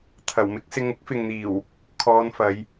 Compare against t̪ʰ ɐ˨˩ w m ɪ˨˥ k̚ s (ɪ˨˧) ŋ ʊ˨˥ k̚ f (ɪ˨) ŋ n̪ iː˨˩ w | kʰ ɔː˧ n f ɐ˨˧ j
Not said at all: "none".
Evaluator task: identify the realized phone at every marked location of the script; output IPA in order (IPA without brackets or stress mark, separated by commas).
ɪ˨˧, ɪ˨